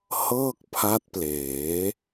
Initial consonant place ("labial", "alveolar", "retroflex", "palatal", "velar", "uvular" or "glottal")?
glottal